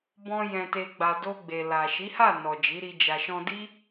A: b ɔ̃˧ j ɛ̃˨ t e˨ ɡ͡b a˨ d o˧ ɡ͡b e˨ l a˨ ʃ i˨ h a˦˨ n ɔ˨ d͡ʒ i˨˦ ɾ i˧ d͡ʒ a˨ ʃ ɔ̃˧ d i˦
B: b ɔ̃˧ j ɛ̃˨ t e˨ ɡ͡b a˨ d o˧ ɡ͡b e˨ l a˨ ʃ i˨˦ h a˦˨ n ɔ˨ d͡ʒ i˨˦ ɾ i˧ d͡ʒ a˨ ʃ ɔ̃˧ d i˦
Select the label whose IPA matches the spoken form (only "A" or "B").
B